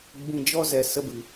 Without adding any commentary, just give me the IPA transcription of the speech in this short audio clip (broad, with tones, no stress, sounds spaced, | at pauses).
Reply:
ɡ͡b ĩ˧ d͡ʒ ɔ˦ z ɛ˨ s ə˧ b ɨ˨